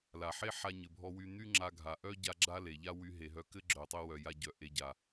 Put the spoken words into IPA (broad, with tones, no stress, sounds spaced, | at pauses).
l a˩ ħ e˥ ħ a˧ ɲ ɘ˩ bʱ ɔ˧ w y˧ n̪ y˥ ŋ͡ǁ a˧ ɡʱ a˩ ʔ œ˥ ɟ a˧ ɡ͡ǁ a˥ l e˩ ʎ a˥ w y˧ ɦ e˩ ɦ œ˧ k ɘ˥ ɡ͡ǁ œ˩ tˤ ɘ˧ w œ˩ j a˧ ɟ œ˩ ʔ e˧ ɟ a˩